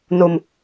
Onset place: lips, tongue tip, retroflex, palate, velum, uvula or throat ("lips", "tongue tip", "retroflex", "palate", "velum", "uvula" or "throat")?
tongue tip